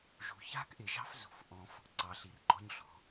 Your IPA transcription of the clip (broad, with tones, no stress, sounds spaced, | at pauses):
ʒ ṳ˨ ç a̤˦ k ʔ ɪ˨ ʒ ɑ̤˦ f z ṳ˨ f ʔ ɔ̃˦ f | ǀ ɑ˨ ɬ i˨ r ɡ͡ǃ ɔ̤˦ ɲ ɬ ɔ̤˨˦